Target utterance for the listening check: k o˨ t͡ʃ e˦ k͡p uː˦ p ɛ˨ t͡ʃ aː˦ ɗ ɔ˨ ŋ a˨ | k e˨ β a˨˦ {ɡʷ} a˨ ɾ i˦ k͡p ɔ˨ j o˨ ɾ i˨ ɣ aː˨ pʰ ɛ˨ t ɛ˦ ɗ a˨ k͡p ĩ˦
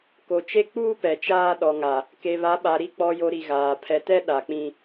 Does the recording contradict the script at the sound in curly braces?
yes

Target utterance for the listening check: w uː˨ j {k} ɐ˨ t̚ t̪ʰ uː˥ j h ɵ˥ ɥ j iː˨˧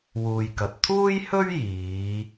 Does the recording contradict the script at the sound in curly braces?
no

